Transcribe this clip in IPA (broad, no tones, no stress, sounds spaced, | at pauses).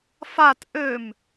f a t ʔ ø m